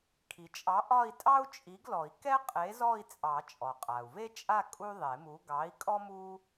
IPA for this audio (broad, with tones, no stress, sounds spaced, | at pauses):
kʰ i˩ t͡ʃʼ ɑ˨˥ ʔ ɒ˥˧ i̯ tʼ ɑ˥ u̯ t͡ʃʼ i˨˥ ɡ l ɔ˨˩˦ i̯ k ɛ˥ qʼ e˨˥ z ɔ˥˧ i̯ t͡sʼ ɑ˨˩˦ t͡ʃʼ ɔ˩ qʼ a˩ u̯ v e˥ t͡ʃʼ a˥˧ kʼ u˥ ðˤ e˨˩˦ m u˨˥ ɡ ɑ˨˥ i̯ kʼ ɔ˥ m u˥